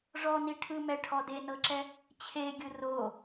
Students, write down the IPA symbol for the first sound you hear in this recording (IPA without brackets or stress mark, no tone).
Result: ʐ